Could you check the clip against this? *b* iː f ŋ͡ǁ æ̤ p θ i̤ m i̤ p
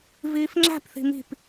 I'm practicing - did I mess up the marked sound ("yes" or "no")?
yes